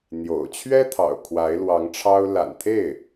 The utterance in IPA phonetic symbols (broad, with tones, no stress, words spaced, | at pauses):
n̪jo̰˨˩ʊ̯ t͡ɕʰɥɛ˥ t̪ʰɑ̰˨˩ʊ̯kʰwa˧˥ɪ̯lwɑ˧˥ŋʈ͡ʂʰɑ˥ʊ̯ la̰˨˩nt̪ʰe˥˩ɪ̯